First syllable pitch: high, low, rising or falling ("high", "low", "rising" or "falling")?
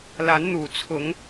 rising